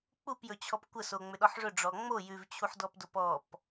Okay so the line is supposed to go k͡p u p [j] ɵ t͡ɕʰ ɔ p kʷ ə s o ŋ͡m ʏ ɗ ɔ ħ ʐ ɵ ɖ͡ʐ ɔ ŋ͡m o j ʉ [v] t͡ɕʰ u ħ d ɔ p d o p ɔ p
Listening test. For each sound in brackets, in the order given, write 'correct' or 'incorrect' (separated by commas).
correct, correct